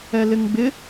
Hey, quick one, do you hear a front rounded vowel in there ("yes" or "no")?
no